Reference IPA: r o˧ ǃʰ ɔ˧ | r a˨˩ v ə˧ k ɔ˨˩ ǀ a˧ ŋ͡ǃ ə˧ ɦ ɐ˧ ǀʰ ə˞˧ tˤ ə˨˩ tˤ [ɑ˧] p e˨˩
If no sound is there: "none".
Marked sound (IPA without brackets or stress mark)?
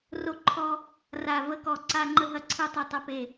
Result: ɐ˧